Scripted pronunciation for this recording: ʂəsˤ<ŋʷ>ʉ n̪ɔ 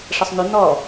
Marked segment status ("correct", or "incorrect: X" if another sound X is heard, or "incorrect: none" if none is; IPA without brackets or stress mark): incorrect: m